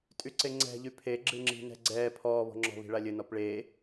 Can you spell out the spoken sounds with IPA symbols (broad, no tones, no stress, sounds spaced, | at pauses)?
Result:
tʼ y ǀ e ŋ͡ǀ ɛ̤ ʎ y pʰ e ɡ͡ǁ ɨ ŋ͡ǁ i̤ n ɛ̤ ɡ͡ǀ ɛː pʰ ɔː β ɔ̤ ŋ͡ǁ ɔ̤ β i̤ ɭ a lʲ ɘ n ɔ p ɭ eː